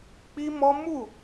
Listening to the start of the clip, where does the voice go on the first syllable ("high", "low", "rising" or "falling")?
high